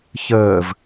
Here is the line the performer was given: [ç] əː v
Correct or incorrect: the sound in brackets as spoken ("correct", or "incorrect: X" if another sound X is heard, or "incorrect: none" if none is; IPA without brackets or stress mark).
correct